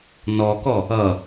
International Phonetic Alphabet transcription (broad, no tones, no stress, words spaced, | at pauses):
nɔkɔ | ʌ